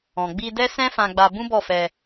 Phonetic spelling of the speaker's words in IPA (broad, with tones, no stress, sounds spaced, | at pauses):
ɔ̃˨ ɡ͡b i˧ d ɛ˦ s ɛ̃˦ f ã˧ ɡ͡b a˧ b ũ˦ b ɔ˦˨ f ɛ˧